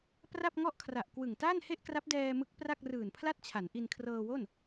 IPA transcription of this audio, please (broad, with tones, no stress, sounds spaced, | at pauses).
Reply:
p r a˥˩ p̚ ŋ ɔ˥˩ ʔ kʰ r a˨˩ ʔ k w ɯ˨˩ ŋ t aː˥˩ n h e˥˩ ʔ k r a˦˥ p̚ d ɛː˧ m ɯ˦˥ k̚ p r a˥˩ k̚ r ɯː˨˩ n pʰ l a˥˩ t̚ t͡ɕʰ a˩˦ n ʔ i˧ n kʰ r ɤː˧ w o˥˩ n